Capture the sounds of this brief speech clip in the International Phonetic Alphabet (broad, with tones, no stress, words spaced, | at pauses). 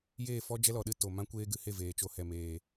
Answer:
jeː˦˨fɔ˦ d͡ʒɛ˦lɔ˨ɗɨ˧ to˨mã˦ kʷeː˦ɡɨ˧ he˦˨veː˨t͡ʃo˧ hɛ˨ meː˨